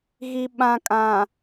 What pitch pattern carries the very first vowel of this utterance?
low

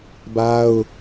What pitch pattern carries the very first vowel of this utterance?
high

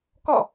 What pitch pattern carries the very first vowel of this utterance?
falling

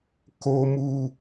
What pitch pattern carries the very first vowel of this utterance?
high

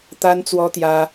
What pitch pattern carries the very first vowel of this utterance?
high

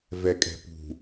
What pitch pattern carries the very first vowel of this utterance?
low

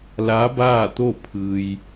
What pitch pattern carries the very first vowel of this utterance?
rising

